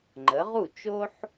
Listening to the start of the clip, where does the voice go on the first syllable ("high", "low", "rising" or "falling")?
rising